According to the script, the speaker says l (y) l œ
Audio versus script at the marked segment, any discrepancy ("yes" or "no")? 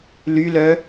no